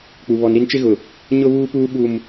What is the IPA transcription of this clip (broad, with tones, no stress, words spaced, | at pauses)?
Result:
k͡pu˨ βɔ˨nɾi˦nt͡ʃɪ˦ɣʊ˨ | ɲʊ˦βuː˦puː˦ ɓu˦m